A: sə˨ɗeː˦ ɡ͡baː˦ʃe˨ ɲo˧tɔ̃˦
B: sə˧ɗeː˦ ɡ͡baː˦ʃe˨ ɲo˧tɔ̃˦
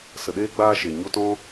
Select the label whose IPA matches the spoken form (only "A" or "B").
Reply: A